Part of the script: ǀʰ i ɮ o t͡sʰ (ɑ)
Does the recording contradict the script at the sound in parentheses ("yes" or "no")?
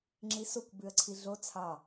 no